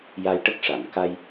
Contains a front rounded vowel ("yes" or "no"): no